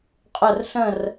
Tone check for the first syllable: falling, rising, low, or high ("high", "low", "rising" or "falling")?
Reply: falling